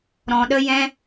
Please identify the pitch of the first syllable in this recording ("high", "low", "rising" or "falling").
low